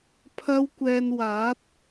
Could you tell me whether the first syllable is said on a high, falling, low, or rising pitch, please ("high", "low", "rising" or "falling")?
high